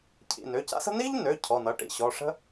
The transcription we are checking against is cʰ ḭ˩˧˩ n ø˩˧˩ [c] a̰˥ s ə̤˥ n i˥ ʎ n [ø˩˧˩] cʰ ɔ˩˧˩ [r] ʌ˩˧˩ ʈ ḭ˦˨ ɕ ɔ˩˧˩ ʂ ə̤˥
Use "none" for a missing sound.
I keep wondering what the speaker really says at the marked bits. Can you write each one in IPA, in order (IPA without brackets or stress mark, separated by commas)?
c, ø˩˧˩, n